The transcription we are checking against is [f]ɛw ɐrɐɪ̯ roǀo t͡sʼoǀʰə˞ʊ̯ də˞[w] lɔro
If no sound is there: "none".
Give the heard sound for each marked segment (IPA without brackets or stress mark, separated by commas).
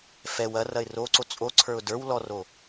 f, w